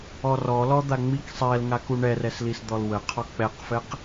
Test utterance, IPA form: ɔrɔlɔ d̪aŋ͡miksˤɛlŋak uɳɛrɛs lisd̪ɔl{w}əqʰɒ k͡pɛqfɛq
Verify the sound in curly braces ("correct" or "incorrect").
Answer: correct